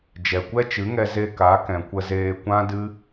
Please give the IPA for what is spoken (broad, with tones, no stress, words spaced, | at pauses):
d͡ʒɛ˨kʷɛ˦t͡ʃɨ˨˦ŋɛ˧ ze˧ ka˨˦kɛ̃˨ kʷə˧zeː˧kʷã˦dɨ˦